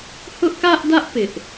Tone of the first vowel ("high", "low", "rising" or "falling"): high